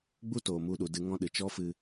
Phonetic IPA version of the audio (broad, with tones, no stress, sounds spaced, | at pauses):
ɡ͡b u˦ t oː˨ m u˧ ɗ u˨ d ɨ˧ ŋ ɔ̃˦ ɗ ɨ˨ t͡ʃ ɔ˦ f ɨ˧